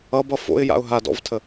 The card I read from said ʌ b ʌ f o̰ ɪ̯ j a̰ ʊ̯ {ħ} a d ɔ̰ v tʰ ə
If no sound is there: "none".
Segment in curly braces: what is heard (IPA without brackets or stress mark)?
ɦ